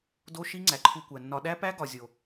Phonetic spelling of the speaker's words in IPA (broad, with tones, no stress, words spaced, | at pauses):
do˦ ʃi˦ ŋ͡ǀæ˨ǃʰu˧kʷæ˨nːɒ˧ ɗæ˦pæ˦ ɡɒ˨zʲo˨